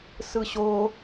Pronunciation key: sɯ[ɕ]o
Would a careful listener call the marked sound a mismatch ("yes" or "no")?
no